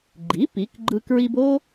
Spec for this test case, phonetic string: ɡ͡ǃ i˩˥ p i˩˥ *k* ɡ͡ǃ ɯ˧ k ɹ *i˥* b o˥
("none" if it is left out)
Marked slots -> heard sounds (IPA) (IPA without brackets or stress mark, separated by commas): k, i˧